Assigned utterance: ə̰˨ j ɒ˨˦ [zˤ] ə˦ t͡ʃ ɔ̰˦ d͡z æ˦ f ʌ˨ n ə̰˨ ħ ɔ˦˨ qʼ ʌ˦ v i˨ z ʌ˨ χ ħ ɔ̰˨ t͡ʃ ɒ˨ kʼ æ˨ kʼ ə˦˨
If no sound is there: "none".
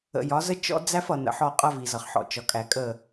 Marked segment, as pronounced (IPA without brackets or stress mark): z